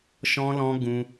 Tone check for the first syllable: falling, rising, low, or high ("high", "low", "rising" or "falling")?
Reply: high